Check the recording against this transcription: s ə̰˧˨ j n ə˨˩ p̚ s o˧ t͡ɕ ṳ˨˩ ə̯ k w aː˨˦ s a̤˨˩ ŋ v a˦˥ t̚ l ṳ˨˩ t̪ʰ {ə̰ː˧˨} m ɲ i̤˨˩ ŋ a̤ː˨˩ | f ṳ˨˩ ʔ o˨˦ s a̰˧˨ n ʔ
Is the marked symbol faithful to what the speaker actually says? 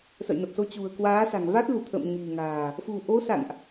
yes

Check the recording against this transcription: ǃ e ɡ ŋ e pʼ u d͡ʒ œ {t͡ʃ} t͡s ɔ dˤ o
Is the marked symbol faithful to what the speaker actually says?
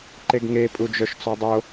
no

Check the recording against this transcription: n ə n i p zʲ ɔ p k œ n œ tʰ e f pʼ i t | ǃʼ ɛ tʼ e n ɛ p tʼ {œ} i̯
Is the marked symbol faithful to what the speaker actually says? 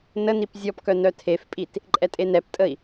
no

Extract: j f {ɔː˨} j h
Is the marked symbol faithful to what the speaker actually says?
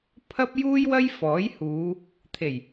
no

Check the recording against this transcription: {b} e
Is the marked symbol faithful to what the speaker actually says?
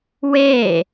no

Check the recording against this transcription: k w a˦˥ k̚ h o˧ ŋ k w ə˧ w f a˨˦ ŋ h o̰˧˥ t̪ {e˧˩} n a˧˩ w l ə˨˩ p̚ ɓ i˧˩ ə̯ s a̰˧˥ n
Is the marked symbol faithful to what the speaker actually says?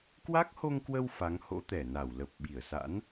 no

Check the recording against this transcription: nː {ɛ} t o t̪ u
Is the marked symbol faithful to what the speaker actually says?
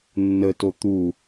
no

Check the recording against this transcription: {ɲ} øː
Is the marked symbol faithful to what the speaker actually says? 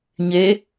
yes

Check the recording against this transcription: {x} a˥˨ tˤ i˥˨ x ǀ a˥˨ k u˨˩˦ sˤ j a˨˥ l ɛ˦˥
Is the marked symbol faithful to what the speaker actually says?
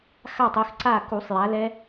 yes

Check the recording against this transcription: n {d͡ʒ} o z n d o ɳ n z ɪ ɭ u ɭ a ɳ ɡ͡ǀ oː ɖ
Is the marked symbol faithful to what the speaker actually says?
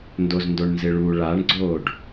no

